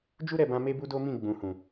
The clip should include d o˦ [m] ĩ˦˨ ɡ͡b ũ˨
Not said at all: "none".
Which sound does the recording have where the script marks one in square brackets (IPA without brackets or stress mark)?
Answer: m